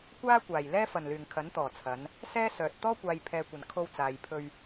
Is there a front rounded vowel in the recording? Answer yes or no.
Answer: yes